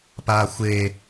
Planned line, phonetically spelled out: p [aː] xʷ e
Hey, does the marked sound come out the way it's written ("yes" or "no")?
yes